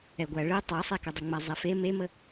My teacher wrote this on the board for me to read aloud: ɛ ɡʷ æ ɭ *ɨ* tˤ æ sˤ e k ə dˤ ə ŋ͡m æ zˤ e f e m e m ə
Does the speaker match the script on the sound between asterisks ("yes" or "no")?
yes